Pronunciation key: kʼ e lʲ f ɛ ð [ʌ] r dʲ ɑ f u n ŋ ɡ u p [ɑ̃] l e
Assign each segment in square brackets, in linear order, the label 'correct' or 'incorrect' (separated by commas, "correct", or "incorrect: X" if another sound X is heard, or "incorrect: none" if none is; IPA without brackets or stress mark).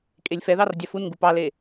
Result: incorrect: ɑ, incorrect: ɑ